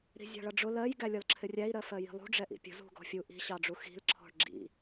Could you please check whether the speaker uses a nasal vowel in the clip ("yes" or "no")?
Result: no